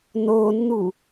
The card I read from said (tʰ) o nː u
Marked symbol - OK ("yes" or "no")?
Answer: no